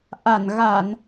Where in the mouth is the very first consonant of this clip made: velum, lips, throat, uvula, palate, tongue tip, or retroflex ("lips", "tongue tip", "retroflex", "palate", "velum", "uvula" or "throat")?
throat